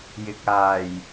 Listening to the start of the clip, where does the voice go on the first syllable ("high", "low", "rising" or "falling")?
low